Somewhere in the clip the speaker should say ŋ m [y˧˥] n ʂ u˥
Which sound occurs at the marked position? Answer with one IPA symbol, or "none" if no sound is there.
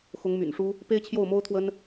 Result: y̰˨˩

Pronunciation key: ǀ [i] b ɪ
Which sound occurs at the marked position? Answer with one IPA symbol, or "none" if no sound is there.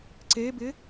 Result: e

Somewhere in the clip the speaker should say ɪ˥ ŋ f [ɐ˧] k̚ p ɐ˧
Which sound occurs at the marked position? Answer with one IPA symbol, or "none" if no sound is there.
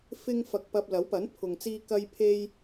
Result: ɐ˧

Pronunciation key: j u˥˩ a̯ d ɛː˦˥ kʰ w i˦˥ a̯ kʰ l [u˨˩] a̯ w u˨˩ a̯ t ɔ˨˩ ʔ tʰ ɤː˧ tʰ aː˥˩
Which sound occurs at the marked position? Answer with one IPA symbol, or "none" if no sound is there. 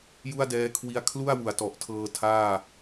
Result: u˥˩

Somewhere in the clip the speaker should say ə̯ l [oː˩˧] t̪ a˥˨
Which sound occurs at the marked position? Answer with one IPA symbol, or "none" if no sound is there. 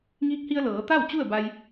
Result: ɤː˩˧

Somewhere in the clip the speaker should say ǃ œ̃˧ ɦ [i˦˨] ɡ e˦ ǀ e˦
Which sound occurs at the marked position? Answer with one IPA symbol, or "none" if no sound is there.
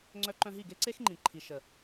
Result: i˦˨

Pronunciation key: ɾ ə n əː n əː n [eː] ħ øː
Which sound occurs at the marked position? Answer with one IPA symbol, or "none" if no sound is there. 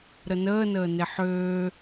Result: e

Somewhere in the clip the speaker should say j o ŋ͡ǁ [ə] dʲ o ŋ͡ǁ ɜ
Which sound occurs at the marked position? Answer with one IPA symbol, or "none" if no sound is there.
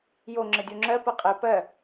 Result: ə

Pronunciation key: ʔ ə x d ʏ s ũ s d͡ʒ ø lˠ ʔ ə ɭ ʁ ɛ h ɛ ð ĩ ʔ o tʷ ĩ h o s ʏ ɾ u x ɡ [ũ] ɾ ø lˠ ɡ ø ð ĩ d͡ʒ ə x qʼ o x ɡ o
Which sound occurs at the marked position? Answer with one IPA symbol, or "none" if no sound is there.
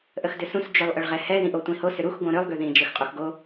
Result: õ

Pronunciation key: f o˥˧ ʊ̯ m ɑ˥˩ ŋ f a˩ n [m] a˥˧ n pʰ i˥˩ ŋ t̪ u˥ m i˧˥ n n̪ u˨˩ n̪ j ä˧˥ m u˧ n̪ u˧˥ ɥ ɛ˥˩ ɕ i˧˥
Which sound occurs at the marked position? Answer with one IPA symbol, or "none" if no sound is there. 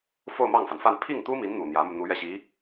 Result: f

